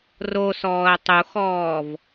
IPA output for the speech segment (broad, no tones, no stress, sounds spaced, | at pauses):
r o s ɔː ə̯ tˤ u x ɔː v